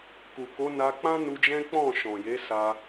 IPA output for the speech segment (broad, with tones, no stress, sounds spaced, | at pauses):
k u˨ k o˨˦ n a˧ k͡p ã˦ n u˧ d͡ʒ ɛ̃˦ k͡p ɔ̃˦˨ ʃ ɔ̃˨ j e˨˦ s a˧